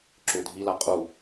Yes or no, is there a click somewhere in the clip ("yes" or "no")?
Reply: yes